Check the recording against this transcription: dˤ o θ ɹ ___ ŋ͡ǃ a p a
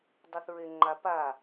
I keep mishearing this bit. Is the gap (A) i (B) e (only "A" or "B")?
B